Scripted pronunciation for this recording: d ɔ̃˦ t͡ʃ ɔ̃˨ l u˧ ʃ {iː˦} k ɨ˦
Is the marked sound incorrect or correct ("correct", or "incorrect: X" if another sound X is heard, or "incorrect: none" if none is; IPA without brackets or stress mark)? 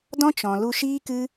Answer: correct